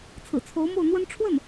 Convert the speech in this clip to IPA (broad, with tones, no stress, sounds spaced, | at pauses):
t͡sʰ ɹ̩˨˩ t͡sʰ o˧˥ ʊ̯ m o˥˩ ʊ̯ n̪ w ə˥ n ʈ͡ʂʰ w ə˥˩ n